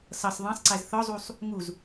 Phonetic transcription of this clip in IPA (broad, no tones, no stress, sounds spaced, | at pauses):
s ʌ sˤ ðˤ ɑ̃ sˤ ǀ æ z θ ɔ zˤ u sˤ | ŋ u z